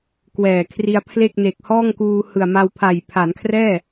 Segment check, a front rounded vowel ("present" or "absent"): absent